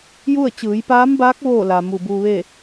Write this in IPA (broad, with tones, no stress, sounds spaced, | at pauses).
j u˥˨ ə̯ t͡ɕ ɯː˩˧ j p aː˧˥ m b aː˧˥ k̚ ʋ oː˥˨ l a˩ m u˧˩ b uː˧ ʋ e˥˨